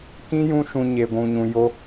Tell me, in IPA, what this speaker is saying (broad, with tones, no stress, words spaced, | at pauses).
kĩ˦jũ˦ʃũ˧ ɲe˧ɡʷũ˧ɲũ˧jo˦